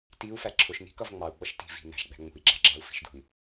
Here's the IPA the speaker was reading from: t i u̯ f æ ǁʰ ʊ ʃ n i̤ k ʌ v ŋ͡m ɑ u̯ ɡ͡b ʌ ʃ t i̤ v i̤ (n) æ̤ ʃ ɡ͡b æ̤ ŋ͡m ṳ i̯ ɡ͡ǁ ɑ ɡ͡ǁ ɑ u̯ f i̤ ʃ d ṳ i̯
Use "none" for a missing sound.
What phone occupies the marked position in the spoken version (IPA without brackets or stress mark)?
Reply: n